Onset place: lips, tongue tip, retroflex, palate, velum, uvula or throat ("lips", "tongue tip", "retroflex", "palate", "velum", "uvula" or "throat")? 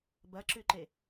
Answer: lips